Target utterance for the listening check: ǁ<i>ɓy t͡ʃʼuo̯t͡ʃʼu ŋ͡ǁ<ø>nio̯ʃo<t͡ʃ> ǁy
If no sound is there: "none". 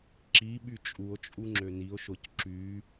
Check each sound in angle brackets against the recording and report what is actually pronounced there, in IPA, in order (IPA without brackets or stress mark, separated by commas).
i, ø, c